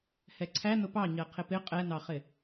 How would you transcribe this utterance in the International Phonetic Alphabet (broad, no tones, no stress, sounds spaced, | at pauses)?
h ɛ ǀʰ æ n ʊ p ɑ ɲ ɜ qʰ ɪ p ɪ qʼ ɛ n ɑ χ ɪ